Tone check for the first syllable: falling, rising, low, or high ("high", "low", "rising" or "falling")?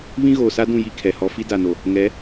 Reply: high